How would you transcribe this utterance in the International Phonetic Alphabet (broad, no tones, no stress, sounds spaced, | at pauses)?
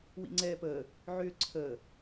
w ḭ ŋ͡ǀ ɛː p əː | ʕ ʏː ǀʰ əː